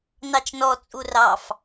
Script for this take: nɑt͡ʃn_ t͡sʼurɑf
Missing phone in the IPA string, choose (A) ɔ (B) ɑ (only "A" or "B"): A